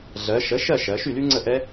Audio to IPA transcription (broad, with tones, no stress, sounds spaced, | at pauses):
ɮ ɜ˩˧ ʃ ə˩˥ ʃ ɜ˥˨ ʃ ɜ˩˧ ʃ y˥˨ l y˦˥ ŋ͡ǀ ə˥˨ ʔ ɛ˦˥